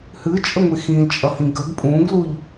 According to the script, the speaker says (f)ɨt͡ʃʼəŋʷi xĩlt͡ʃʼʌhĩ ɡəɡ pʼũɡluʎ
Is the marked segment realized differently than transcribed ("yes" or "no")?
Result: yes